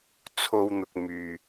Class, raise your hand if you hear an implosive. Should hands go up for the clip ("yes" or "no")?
no